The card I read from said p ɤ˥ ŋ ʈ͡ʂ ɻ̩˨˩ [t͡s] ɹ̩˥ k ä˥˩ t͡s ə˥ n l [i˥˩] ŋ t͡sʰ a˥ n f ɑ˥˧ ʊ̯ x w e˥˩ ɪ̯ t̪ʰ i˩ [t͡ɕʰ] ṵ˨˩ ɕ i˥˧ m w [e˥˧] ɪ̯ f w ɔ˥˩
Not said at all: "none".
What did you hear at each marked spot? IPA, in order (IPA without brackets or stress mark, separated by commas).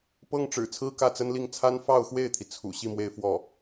t͡sʰ, i˥˩, t͡sʰ, e˥˧